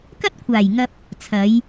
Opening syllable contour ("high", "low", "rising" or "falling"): high